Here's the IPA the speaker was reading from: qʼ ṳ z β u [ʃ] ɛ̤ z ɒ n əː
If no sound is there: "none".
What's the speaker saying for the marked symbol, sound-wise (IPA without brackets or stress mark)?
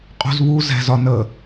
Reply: z